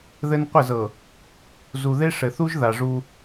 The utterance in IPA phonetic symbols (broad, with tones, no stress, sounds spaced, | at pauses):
ð ɘ˦ n qʷ ɘ˦˨ z ɤ˨ | z u˨ ð e˦ ʂ ɘ˨ θ u˦ ʒ ð a˨ ʐ u˦